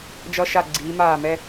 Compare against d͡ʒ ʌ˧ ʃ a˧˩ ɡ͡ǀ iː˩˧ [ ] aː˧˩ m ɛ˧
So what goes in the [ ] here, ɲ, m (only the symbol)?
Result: m